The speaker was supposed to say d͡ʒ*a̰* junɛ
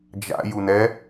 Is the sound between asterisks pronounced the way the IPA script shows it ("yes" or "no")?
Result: yes